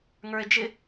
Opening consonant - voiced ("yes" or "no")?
yes